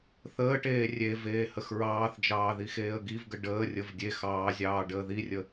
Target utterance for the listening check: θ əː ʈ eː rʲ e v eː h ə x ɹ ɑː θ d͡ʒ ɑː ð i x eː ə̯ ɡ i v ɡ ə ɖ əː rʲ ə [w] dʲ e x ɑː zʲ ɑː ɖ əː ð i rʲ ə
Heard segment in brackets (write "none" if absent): v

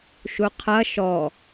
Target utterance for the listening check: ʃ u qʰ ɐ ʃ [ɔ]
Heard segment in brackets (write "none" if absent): ɔ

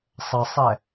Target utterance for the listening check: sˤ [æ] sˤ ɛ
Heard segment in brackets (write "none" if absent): ə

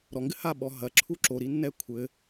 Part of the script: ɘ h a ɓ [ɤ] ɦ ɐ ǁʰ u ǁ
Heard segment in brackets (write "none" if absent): ɔ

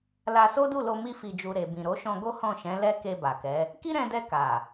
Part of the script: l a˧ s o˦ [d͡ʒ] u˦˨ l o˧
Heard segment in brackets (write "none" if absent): d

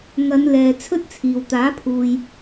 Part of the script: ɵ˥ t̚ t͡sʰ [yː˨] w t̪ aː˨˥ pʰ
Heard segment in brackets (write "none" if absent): iː˨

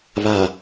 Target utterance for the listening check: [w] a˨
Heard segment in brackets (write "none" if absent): β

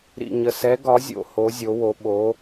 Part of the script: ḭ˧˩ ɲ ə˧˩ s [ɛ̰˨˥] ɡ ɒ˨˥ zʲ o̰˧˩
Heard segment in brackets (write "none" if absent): ɛ˨˥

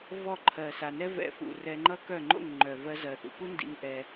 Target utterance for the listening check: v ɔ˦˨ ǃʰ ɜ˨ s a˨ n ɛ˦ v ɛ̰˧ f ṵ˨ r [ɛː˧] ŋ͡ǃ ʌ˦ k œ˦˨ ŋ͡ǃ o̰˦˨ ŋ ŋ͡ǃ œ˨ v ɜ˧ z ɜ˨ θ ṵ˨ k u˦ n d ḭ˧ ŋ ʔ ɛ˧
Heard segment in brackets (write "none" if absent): ɛ˧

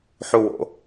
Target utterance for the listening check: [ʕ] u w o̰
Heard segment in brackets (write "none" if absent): ħ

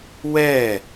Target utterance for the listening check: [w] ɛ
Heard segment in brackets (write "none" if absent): w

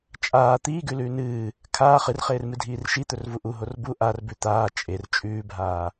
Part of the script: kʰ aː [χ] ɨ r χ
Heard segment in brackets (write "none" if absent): χ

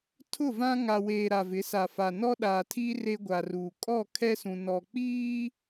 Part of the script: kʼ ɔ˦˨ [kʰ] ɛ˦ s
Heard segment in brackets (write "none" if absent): kʰ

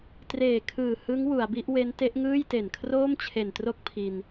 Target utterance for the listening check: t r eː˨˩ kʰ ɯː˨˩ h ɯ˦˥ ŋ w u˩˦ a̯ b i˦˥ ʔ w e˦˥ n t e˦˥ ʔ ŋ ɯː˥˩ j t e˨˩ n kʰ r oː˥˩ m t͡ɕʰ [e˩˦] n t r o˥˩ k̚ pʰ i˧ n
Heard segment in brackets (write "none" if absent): e˨˩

